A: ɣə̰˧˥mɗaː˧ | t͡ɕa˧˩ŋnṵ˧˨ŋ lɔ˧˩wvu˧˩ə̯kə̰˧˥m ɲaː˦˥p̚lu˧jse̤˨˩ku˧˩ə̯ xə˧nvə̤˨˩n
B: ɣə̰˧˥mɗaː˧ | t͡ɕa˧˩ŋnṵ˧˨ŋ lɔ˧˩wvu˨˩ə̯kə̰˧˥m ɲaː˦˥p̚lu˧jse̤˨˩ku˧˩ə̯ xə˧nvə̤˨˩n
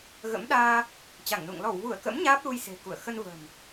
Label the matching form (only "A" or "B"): A